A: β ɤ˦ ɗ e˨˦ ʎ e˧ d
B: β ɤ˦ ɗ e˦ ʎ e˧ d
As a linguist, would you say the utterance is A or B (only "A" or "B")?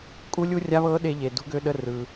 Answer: B